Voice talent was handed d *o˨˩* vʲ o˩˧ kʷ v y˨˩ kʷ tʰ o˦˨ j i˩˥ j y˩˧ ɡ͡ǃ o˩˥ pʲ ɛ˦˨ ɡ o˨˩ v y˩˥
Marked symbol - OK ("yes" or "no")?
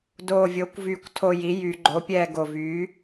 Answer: yes